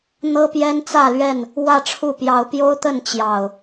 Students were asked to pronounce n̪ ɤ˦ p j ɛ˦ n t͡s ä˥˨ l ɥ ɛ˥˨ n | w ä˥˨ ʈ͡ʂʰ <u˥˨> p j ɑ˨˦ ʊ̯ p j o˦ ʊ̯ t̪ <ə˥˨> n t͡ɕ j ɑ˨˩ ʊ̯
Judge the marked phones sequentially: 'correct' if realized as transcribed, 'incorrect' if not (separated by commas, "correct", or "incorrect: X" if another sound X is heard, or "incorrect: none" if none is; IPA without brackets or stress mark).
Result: correct, correct